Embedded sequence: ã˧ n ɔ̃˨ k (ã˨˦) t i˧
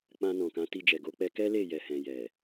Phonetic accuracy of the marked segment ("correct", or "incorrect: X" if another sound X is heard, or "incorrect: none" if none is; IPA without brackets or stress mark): correct